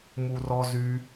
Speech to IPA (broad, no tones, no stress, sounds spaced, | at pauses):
m u r ɔ z y